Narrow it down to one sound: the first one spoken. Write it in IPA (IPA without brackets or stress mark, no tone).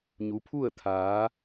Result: ɲ